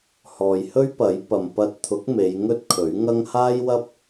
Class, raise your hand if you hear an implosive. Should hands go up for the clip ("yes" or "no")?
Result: no